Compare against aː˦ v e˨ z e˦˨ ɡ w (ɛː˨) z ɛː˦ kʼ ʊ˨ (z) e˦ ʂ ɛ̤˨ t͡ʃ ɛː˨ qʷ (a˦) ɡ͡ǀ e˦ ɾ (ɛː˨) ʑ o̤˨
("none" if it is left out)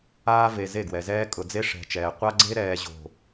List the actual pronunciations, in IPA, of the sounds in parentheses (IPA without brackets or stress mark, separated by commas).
ɛ˨, d͡z, a˦, ɛː˨